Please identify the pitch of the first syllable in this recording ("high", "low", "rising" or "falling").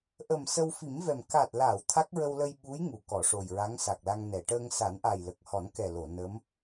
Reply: low